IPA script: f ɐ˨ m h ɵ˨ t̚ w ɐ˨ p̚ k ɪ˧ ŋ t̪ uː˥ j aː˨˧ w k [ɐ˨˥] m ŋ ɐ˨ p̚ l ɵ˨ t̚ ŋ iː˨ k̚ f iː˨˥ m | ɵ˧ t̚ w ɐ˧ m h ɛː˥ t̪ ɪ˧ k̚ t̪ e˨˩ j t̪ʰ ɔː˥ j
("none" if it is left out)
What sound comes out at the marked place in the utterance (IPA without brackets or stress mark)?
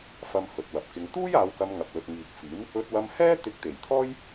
ɐ˧